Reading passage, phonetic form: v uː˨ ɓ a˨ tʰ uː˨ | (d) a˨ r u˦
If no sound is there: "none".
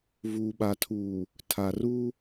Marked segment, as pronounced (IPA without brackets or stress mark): tʰ